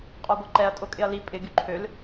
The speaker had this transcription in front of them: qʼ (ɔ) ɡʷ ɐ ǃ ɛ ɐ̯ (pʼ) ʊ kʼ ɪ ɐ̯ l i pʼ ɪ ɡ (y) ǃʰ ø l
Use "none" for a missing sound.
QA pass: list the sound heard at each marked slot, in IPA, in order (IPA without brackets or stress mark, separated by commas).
ɔ, tʼ, y